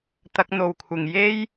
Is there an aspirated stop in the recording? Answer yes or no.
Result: yes